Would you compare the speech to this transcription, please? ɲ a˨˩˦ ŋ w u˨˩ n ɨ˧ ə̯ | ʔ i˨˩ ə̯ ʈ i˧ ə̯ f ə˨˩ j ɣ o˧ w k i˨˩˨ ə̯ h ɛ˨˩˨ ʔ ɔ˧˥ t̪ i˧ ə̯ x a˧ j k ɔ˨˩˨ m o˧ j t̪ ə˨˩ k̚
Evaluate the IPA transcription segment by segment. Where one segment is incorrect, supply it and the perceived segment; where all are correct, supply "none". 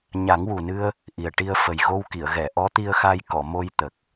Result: h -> ɣ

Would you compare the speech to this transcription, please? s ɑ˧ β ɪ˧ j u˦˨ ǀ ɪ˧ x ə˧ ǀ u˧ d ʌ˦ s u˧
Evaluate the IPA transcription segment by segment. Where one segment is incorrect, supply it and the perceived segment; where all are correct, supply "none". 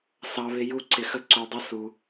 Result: d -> dˤ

